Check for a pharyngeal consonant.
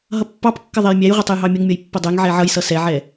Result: present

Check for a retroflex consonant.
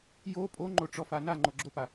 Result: present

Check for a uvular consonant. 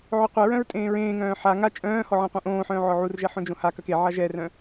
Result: present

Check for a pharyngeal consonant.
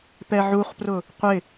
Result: present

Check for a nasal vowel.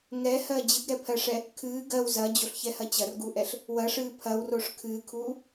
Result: absent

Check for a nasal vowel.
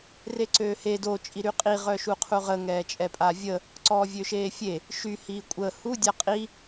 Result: absent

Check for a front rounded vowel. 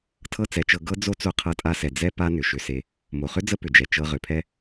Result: present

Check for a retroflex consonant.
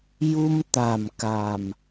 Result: absent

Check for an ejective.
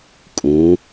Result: present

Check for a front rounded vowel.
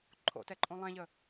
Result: absent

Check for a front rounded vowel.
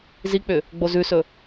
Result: present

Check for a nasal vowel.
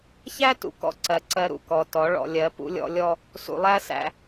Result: absent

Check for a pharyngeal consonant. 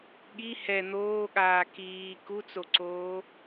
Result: absent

